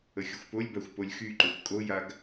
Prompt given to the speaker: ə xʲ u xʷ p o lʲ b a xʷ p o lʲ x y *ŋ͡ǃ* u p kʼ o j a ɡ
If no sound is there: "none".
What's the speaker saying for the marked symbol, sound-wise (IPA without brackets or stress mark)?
ǃ